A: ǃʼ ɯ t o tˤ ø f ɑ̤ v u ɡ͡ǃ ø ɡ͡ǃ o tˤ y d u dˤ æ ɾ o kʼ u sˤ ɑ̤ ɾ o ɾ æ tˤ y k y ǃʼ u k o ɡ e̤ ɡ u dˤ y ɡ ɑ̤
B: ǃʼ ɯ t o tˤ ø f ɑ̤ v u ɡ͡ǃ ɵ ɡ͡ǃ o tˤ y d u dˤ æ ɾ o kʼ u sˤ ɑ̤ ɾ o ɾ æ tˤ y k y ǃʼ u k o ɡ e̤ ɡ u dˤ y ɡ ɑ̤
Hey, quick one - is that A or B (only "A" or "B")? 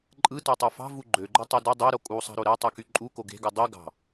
A